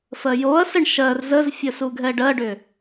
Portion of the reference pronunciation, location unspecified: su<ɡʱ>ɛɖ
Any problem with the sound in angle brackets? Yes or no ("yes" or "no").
no